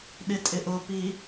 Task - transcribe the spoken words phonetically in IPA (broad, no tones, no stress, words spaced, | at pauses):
ɗɪtʼɪʔʊpi